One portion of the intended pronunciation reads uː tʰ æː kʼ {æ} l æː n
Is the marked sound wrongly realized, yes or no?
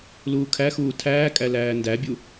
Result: no